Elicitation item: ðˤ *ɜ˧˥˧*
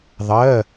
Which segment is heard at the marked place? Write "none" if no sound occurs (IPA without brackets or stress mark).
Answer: ɜ˧˥˧